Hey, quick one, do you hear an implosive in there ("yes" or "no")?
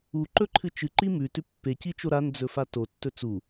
no